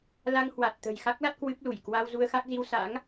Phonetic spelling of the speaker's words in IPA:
l a˧ ŋ h w a˨˩ t̚ t̪ ə̤˨˩ j x a˦˥ k̚ l a˦˥ t̚ k w ɨ˦˥ p̚ l u˧˩ j k w a˧ w z u˧ ə̯ x a˦˥ k̚ z i˧ w s a̰˧˥ ŋ

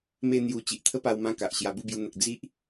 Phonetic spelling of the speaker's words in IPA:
m e˦ n̪ j u˧ t͡ɕ i˨ ʔ t̪ʰ ə˦ p a˧ w m ã˧ k a˨ ʔ ɕ j a˧ b u˥˧ b j u˧ n̪ ə˨ k̚ d͡z i˦ ʔ

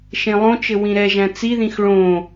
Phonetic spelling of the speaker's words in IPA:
ʃ ẽ lˠ õ t͡ʃ ɘ w ĩ ɾ ɛ ʒ æ̃ t͡s i ð ĩ x ɭ õ

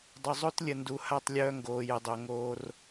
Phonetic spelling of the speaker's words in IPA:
dˤ ʏ˨ zˤ o˦ t lʲ ə˨ n d u˨ h a˦˨ tˤ lʲ œː˦ ŋ ɡ oː˨ j ə˨ dˤ o˨ ŋ oː˦ r

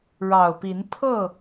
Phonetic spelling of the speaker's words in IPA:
ɻ ɑ˨˩ ʊ̯ p i˨˦ n pʰ ɤ˥˨

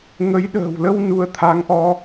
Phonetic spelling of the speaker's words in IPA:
ŋ ə˨˦ j ɗ ə̤ː˨˩ w l ə˧ w n u˧ ə̯ t̪ʰ a˨˦ ŋ ʔ ɔ˧

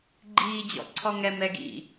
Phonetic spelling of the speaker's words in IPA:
ɡ͡ǃ iː d͡ʑ ɔ̰ ǀʰ ɔ ŋ ɛ m ɛ ɡ ḭ

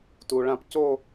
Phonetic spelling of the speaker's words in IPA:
t u˩ ɭ ã˧ p c o˥˧

